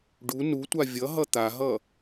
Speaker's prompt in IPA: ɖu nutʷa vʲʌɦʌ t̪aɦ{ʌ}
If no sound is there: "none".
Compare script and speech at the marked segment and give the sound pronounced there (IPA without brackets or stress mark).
ʌ